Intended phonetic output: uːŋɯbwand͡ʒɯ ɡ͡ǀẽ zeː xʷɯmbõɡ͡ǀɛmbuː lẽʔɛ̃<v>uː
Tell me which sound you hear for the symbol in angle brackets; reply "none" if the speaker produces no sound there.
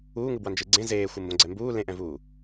v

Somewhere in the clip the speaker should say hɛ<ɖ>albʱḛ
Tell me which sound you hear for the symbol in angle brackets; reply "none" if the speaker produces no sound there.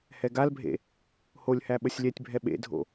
ɡ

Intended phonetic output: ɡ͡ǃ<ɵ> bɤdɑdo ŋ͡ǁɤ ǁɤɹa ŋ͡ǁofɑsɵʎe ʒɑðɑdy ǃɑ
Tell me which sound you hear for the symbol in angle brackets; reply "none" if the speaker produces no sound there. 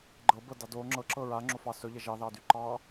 ɤ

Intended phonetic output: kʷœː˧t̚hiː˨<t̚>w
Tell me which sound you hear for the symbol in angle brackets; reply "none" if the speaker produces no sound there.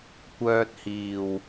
none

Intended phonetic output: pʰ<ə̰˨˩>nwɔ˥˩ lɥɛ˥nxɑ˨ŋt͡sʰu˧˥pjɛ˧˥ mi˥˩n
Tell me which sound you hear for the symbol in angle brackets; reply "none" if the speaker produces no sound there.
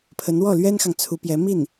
ə˧˥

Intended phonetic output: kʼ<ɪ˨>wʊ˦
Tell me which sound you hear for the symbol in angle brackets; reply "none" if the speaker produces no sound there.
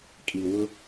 i˨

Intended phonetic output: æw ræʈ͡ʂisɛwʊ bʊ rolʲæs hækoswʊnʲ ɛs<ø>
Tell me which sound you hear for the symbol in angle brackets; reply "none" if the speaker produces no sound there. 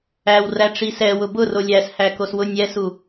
u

